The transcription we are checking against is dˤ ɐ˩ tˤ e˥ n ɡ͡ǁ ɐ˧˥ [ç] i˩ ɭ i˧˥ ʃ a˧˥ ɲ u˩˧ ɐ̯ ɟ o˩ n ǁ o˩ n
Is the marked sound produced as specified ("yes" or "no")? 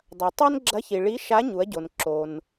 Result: yes